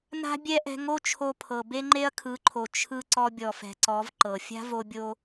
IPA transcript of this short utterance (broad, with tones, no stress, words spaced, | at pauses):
na̤˦bʲɛ˦ ʔɛ̤˧ŋo˦t͡ʃʰo˧pʰɤ˨ be˦ŋ͡ǃe˦ɐ̯kʰɯ˨˦ǃʰo˨ t͡ʃʰɯ˧ ǀɔ˧bʲɔ˨fɛ̤˨ǀɔ˨˦v ǃɤ˨ fʲa̤˦vo˧bʲo˧